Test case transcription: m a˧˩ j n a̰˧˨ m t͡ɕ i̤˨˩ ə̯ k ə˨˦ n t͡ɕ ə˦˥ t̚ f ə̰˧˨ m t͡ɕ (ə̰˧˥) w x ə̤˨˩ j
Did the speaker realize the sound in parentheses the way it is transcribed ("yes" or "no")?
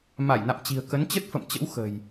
yes